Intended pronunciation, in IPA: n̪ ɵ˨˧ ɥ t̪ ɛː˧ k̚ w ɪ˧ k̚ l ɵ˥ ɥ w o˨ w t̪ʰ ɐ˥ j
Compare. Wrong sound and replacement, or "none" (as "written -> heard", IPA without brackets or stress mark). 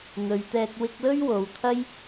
none